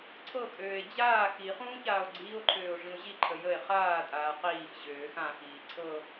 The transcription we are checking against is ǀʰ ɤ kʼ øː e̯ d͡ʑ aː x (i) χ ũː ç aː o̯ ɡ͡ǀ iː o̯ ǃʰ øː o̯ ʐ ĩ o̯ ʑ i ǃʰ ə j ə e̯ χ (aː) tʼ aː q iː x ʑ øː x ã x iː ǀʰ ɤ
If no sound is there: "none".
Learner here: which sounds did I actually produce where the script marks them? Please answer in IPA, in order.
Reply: i, aː

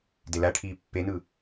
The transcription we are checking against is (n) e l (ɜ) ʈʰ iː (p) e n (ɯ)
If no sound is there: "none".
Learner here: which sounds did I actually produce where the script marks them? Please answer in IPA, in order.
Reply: d, æ, pː, ɯ

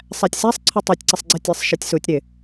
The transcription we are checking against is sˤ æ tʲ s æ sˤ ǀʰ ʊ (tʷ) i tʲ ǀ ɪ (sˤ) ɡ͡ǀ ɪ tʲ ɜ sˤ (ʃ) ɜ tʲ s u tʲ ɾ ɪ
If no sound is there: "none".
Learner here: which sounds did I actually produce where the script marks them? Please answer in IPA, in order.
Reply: tˤ, sˤ, ʃ

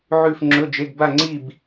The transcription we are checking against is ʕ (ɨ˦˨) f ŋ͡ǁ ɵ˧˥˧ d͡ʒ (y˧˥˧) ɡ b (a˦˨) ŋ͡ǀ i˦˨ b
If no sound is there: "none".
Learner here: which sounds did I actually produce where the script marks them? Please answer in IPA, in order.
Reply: ʉ˦˨, e˧˥˧, a˦˨

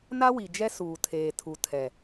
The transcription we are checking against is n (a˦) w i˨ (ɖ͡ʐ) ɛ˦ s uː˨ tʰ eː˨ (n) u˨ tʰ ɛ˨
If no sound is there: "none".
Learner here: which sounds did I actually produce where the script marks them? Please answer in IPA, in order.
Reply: a˦, d͡ʒ, tʰ

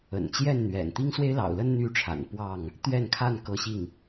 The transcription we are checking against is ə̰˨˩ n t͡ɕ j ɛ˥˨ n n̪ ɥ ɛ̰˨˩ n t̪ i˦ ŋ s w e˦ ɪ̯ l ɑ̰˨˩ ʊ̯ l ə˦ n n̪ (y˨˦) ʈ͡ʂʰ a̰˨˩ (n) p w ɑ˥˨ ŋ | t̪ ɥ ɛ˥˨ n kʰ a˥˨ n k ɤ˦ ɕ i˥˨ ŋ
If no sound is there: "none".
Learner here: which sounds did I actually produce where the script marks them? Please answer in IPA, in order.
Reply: y˦, n

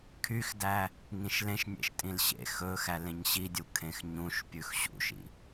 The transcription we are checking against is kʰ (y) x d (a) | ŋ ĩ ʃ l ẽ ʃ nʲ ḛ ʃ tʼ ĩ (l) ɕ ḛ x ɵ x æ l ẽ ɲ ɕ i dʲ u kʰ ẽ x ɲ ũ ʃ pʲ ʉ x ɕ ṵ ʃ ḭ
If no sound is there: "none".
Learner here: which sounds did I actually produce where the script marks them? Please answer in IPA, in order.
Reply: y, æ, l

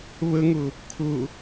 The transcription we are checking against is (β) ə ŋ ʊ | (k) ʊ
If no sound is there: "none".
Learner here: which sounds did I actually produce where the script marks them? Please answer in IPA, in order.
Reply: β, kʰ

